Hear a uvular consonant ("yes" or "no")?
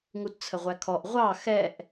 yes